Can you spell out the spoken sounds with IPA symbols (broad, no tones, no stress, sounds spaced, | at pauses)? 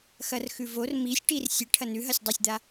x ɐ r x ʉ v o r m i sʲ ʈ i r sʲ ɨ ʈʰ ɐ n ʉ ɦ ɐ sʲ dˤ o sʲ d̪ a